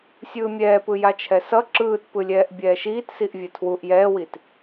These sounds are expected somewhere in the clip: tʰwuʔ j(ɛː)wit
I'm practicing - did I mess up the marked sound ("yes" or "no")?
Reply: no